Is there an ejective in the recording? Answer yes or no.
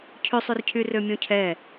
no